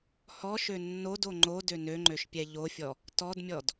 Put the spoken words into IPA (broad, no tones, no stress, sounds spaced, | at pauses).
h ɔ ʃ ø nː o d o ŋ͡ǃ o d ø n ø ŋ͡ǃ ø ʃ pʲ ɛ ʎ o fʲ ɔ | t ɔ d mʲ ɔ d